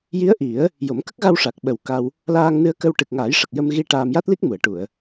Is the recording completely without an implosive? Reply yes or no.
no